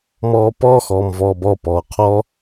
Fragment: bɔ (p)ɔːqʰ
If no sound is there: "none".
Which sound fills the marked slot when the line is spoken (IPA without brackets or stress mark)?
p